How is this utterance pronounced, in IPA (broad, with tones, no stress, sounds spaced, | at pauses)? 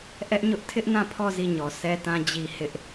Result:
ʔ ɛ˦ ʔ ɲ ʊ˦ ʔ tʰ ɪ˦ ʔ n ã˦˨ pʰ ɔ˦˨ z i˦˨ ɲ ɔ˨ sʰ ɛ˦ t ã˦ d͡ʑ i˦ h ɪ˦ ʔ